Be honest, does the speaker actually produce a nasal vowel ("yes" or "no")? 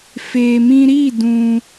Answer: yes